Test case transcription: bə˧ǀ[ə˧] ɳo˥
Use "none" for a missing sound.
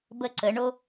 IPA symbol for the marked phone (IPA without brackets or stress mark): ə˩˧